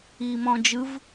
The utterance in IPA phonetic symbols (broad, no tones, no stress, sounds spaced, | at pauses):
iː m ɔ̃ː d͡ʒ ɯ v